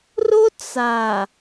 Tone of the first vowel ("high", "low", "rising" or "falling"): high